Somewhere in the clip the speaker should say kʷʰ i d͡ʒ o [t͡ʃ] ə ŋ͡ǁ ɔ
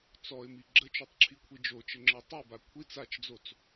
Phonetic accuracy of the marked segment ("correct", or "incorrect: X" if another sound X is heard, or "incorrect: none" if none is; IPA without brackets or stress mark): correct